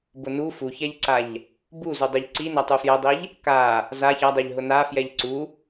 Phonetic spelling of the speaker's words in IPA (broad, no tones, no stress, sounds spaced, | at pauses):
b ʊ n u f u ç ɛ ʎ ǀ a ʎ | b u z u dˤ u ʎ ǀ i n æ tˤ u f j ɛ dˤ i ʎ | k a | z a ç a dˤ e ʎ ɦ ʊ n a f j ɛ ʎ ǀ u